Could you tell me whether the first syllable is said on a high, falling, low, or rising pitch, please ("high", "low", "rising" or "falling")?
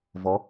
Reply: rising